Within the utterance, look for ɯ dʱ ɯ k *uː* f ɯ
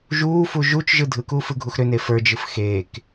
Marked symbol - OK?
yes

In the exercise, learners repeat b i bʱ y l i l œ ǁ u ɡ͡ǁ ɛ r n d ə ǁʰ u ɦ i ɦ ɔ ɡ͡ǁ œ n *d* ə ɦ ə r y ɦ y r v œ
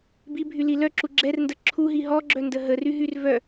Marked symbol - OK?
yes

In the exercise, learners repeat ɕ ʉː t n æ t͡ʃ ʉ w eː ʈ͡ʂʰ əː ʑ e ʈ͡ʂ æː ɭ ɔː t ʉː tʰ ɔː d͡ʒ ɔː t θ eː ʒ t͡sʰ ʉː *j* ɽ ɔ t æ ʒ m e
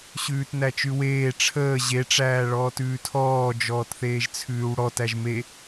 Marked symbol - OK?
no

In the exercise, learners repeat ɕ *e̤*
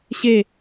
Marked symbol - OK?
no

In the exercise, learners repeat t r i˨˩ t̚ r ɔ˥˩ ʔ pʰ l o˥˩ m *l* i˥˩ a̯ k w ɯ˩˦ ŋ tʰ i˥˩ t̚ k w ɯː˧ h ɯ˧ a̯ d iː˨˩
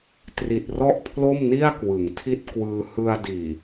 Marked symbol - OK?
no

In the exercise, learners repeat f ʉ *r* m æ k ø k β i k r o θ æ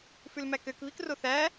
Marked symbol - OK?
no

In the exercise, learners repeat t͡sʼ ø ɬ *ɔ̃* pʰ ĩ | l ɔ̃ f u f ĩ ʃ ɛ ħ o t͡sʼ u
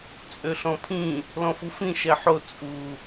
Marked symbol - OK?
yes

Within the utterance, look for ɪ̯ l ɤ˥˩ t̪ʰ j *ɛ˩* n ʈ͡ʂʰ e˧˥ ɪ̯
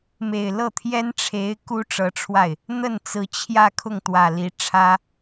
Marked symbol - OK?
no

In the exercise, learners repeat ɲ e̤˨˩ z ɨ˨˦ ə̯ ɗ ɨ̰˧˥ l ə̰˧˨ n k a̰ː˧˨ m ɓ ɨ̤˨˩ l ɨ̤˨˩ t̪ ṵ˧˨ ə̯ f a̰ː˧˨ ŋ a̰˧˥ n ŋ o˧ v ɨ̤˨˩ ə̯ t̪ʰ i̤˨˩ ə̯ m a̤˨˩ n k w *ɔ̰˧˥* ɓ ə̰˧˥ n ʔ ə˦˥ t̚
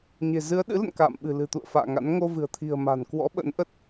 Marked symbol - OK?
yes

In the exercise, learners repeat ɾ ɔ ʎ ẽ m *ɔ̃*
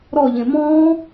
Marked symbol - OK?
yes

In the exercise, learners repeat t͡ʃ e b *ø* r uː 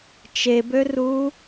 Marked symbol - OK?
yes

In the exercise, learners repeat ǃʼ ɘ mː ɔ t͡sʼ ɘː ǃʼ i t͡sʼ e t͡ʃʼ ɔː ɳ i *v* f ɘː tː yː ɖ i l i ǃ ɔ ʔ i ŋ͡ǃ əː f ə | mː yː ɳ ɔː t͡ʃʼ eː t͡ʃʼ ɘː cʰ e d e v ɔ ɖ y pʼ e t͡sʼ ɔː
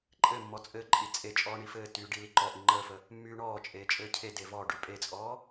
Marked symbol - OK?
no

